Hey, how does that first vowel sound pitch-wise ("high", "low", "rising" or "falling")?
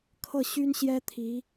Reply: falling